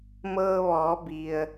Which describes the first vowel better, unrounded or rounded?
unrounded